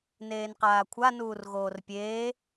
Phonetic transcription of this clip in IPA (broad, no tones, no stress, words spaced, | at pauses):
neːnqaːkʷʰa nuːrɣoːrpʲeː